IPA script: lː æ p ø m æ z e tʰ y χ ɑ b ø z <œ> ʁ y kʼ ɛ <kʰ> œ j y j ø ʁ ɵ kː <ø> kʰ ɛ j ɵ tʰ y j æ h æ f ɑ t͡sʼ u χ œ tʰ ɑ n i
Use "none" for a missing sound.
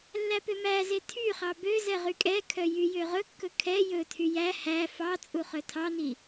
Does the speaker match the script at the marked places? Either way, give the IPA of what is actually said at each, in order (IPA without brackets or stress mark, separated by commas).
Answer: ɛ, kʰ, ɵ